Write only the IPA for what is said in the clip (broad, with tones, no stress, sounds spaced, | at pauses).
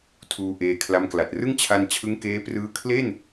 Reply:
tʰ uː˧ ʔ eː˧ kʰ l a˦˥ m k l a˨˩ t̚ r ɯ˥˩ ŋ t͡ɕʰ a˧ n t͡ɕʰ ɯ˦˥ ŋ k eː˦˥ p r ɯː˦˥ kʰ l e˥˩ n